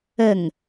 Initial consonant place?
velar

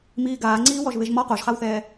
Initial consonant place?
labial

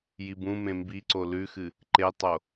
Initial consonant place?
palatal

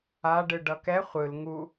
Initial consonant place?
retroflex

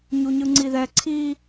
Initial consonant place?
palatal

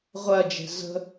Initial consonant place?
uvular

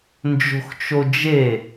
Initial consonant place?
alveolar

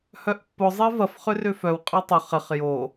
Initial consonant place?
glottal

